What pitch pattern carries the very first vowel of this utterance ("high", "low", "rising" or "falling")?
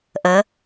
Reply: rising